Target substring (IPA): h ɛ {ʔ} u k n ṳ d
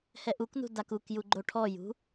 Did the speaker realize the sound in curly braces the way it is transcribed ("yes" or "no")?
yes